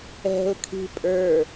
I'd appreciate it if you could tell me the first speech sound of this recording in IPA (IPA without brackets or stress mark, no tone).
ɛ̤